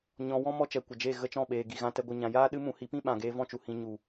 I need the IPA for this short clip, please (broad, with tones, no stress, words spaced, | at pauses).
ɲɔ̃˨wɔ̃˦ mɔ˦t͡ʃɛ˨kʷə˨d͡ʒe˦˨ ɣə˦t͡ʃɔ̃˦˨ɓeː˨ ɡi˨ɣã˧ tɛ˧ɡʷɨ˨ ɲã˨jaː˦ ɗɨ˦mũ˨˦hi˨˦pĩ˦ ɓã˨ɡeː˧ vɔ̃˦t͡ʃu˨hĩ˧ ɲu˨